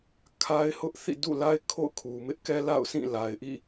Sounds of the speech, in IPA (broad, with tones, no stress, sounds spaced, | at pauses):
kʰ a˦ ɪ̯ h ʊ˦ ʔ θ ḭ˦˨ d ṵ˦˨ l a˦ ɪ̯ kʰ o̰˦˨ ʊ̯ kʰ u˨ m ɪ˦ ʔ k ɛ˦ l a̰˦˨ ʊ̯ s ĩ˦˨ l a˨ ɪ̯ ʔ ḭ˦˨